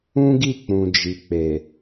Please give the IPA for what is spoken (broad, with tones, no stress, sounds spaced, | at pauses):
ũ˦ ɡ i˦˨ k͡p ũ˨ d͡ʒ i˨ k͡p e˨